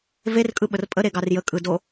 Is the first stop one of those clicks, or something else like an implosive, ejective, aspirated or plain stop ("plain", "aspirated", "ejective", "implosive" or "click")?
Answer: ejective